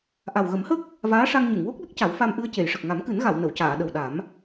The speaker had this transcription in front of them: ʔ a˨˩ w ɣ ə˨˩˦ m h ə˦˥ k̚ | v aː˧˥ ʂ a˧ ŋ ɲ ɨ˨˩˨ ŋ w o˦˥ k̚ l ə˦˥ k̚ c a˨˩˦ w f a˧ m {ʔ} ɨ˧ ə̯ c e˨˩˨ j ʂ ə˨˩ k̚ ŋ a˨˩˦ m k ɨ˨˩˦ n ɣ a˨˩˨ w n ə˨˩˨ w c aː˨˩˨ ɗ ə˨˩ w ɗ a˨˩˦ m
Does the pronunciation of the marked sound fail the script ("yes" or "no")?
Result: no